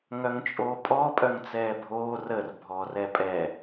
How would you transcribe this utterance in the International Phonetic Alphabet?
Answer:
ŋ œ ŋ t͡ʃʼ oː pʼ ɔ pʼ œ ŋ t͡s ɛː bʱ oː r ə r bʱ ɔː r ɛ pʼ ɛ

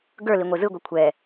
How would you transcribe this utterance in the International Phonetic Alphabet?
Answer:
ɡ ə˞ l i ŋʷ e z ɯ ɡʷ i kʷʰ ɛ

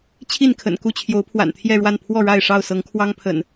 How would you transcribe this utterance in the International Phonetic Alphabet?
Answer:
t͡ɕʰ i˥˨ n kʰ ə̰˨˩ n k u˥˨ t͡ɕʰ j o˨˦ ʊ̯ pʰ w a̰˨˩ n t̪ʰ j ɛ˥˨ ɻ w a˥˨ n pʰ w ɔ˥˨ ɻ a˥˨ ɪ̯ ʂ ɑ˥˨ ʊ̯ s ɤ˨˦ ŋ kʰ w ɑ˦ ŋ pʰ ə̰˨˩ n

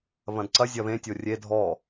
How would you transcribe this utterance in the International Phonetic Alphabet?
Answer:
β ɐ̃ d ǀ ɐ zʲ ɐ β ẽ tʲ o rʲ e dʱ ɔ

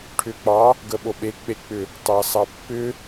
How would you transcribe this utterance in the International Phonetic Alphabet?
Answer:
ʈʰ ʏ k͡p ɑ | ɡ ə ɓ o ɓ e k͡p e k͡p ʏ | t ɑ s ɑ pː ʏ

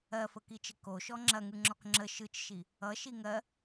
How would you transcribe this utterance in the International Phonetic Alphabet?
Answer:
ɜ f ə k i t͡ʃ ə k o ʃ ɔ ŋ͡ǁ ɐ ŋ ɯ ŋ͡ǁ ɔ k ŋ͡ǁ ə ʃ ɯ t͡ʃ ʃ i | ʌ ʃ i ŋ ɜ

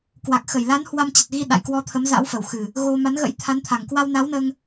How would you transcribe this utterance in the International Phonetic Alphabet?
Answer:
k w a˨˩ k̚ x ə˧˩ j l a˨˦ n h w a˧ m t͡ɕ ə˨˩ t̚ ɣ i˧ ɗ a̰˧˨ j k w ɔ˧ t̪ʰ ə˨˦ m z a̰˧˥ w f ə˧˩ w x ɨ˨˩ | ɣ o˧ m a˨˦ n ɣ ə̰˧˥ j t̪ʰ a˨˦ n t̪ʰ a˨˩ ŋ k w a˧ w n a˨˦ w n əː˧ ŋ

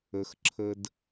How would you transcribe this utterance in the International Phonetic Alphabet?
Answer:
ə˩ x ǁʰ ə˨ d

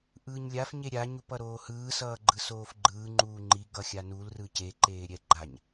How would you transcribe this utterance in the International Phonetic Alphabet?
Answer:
ʔ ɯː ɲ lʲ a f ɲ e ɾʲ a ɲ u p ʌ ɾ oː h ɯː s ʌː ɡ͡ǃ ɯ s oː f ɡ͡ǃ ɯː ŋ͡ǃ uː ŋ͡ǃ i ɡ ʌ xʲ a n u l r ɯ c e ǃ eː ɾʲ ɛ ɡ͡ǃ a ɲ

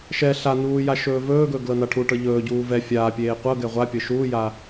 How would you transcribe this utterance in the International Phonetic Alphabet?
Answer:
ʃ ɛ ɬ a n uː j a ʃ ɵː v ɵː ɡ ɵ ɡ l ɤ n a ʈʰ u ʈ ɤ ʎ ɵː ɟ uː v ɛ fʲ aː pʲ eː qʷ ɤ ɡ ɛ ʁʷ a pʲ ɤ ʃ uː j a

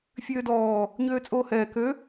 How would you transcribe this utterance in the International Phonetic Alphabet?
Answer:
fʲ øː d ɔː | ɲ øː t͡sʼ oː h ɛː k ø

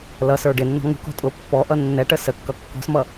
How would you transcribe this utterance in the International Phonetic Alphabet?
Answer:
l ʌ s ə˞ ɖ ɪ nː ɔ̤ ŋ ṳ k ɔ̤ tʼ ʊ pː ɔ ʔ ʌ nː ɛ ʈ ə s ə kː ʌ kː ɔ̤ s m ʌ

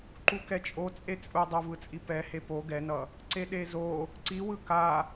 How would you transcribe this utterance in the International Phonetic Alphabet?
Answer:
ǃ u k ɛ t͡ʃʼ o t͡sʼ e t͡sʼ u dˤ o v ɯ t͡sʼ i p ɛ h e p o ɡ ɛ n ʌ | ǀ e ɗ e z o | ǀ i w ɯ k a

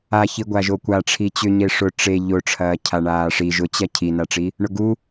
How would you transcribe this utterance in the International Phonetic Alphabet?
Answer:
a ç i ɡʷ a ʒ o kʷ a ʈ͡ʂʰ i t͡ɕ ʏ ɲ e ʂ ʊ ʈ͡ʂ e ʎ ʊ ʈ͡ʂʰ ɐː cʰ a ɳ aː ʂ i ʒ ʊ t͡ɕ ɐ cʰ i n a ʈ͡ʂ i | ɳ ʊ ɡ u

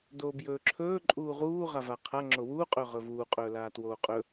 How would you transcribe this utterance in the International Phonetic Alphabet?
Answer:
d oː b j ɵː ǁʰ ɵː ǃʼ uː ʁ uː ʁ a v a qʰ a ŋ͡ǁ o w uː qʼ ɵː ʁ ɵ v uː qʼ ɵː l aː t w oː qʼ ɵ

